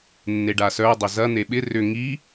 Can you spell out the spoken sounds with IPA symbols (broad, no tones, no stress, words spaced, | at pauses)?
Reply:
nːeɖasœ dˤʏzɐ n̪eɓɪ rʏ ŋi